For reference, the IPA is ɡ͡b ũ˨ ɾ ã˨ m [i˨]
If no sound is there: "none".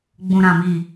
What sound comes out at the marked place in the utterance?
i˨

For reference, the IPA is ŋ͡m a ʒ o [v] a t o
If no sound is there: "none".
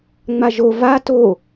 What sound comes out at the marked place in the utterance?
v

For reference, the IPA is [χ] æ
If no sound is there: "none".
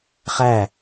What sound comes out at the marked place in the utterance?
χ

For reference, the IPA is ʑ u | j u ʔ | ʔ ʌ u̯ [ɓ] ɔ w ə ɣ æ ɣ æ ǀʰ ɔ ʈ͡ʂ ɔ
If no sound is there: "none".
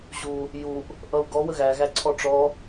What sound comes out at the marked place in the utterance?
ɡ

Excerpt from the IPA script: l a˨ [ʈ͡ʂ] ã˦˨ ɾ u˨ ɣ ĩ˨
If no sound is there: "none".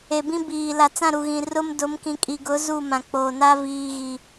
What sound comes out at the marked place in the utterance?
t͡s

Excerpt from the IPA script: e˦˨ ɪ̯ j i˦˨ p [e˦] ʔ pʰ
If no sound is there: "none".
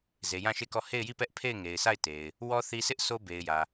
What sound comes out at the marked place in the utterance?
ɛ˦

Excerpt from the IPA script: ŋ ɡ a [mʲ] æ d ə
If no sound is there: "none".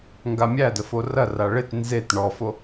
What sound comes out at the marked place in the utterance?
mʲ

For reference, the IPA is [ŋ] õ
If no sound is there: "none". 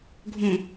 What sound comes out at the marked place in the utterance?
ɡʱ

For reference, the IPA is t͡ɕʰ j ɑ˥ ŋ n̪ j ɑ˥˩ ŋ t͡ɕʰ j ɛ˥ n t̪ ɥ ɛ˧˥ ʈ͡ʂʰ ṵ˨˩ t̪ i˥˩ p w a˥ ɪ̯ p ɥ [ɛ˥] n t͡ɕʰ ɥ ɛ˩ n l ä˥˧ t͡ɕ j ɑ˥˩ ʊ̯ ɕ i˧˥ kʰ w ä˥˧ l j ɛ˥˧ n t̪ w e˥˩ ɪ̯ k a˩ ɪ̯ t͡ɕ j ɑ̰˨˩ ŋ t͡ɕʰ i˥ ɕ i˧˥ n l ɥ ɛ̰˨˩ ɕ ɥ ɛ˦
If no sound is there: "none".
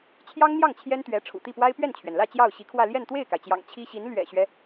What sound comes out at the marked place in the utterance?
ɛ˥˩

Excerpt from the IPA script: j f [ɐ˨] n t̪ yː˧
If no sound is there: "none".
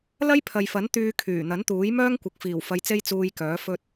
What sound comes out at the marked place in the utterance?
ɐ˨˥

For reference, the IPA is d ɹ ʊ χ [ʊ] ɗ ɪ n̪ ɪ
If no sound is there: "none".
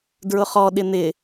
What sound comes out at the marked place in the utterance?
ɔ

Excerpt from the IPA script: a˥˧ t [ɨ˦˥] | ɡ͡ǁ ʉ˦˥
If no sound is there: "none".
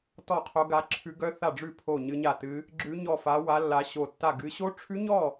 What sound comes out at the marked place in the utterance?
ɨ˦˥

